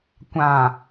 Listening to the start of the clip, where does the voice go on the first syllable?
low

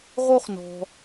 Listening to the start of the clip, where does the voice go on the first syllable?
high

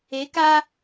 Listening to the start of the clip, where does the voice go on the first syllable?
rising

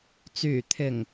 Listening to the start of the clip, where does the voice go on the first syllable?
low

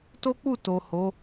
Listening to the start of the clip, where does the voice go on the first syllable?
high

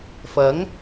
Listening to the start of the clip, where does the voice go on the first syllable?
rising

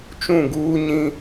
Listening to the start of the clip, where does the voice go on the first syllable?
falling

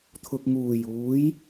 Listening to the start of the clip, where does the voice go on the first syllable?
low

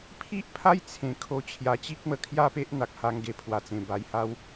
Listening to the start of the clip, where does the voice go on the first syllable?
high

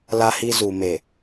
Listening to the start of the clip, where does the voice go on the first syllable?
high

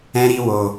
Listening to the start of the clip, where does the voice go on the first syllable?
high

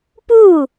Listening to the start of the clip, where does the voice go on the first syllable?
falling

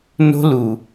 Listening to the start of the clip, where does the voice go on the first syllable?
high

